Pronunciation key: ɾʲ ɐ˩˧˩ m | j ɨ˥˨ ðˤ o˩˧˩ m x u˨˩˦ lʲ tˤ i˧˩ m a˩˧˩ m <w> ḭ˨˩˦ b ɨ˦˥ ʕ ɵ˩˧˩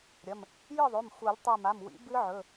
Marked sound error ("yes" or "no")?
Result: no